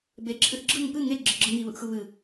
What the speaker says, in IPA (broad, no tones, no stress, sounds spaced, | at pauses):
b e ǁʰ ɨ θ ɡ͡ǁ ɯ ŋ p ɨ ŋ e ɡ͡ǁ ɨ ɡ͡ǁ ɯ ŋ i β ɯ ʔ x ɯ β ɨ